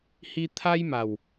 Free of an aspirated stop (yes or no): no